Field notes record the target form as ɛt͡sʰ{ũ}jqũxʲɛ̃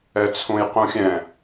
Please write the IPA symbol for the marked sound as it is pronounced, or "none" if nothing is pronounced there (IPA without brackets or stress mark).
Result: ũ